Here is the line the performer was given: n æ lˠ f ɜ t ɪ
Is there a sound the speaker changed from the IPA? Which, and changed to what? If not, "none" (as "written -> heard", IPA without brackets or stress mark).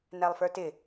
ɜ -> ə˞